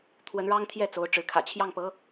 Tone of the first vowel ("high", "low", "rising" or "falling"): rising